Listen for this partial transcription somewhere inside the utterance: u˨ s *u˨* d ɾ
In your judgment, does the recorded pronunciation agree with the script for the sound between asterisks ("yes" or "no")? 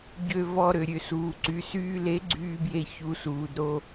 no